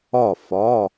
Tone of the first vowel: falling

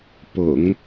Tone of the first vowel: low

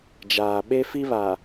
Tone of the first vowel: low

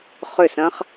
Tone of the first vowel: falling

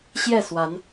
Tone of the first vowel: falling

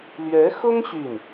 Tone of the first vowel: rising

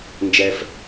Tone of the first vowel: low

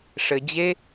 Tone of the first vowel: low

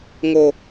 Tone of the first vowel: high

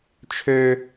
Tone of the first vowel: high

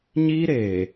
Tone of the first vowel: high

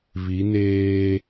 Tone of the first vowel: rising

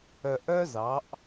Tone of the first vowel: low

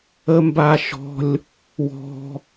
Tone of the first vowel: high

